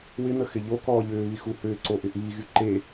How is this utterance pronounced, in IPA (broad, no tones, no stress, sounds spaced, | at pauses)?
w ɪ n̪ ə x ɪ ʎ o k ɔː ʎ ʏː β i x u h ʏː ǀ o ʔ ɪ ʔ iː ɣ y ǃ e